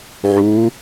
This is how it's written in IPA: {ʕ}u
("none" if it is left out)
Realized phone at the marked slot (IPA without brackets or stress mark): ʕ